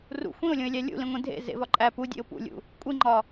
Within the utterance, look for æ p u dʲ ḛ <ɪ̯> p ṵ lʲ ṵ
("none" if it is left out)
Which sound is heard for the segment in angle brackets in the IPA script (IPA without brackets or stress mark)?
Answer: ʊ̯